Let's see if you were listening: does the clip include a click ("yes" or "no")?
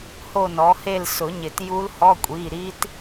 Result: no